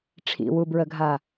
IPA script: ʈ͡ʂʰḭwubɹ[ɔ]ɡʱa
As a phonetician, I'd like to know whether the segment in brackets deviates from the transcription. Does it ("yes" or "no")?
yes